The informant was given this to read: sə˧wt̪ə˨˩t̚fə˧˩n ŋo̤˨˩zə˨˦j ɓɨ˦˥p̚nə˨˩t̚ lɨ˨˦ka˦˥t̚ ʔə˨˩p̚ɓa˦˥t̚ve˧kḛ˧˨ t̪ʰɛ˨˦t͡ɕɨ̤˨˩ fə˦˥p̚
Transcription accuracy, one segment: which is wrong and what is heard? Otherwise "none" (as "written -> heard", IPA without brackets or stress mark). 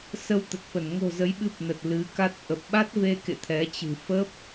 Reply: none